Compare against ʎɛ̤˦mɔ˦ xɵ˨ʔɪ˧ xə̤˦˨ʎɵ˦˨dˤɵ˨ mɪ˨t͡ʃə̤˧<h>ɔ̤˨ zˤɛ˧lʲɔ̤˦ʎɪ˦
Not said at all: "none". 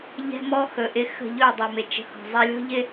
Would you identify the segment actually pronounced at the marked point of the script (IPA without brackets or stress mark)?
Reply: h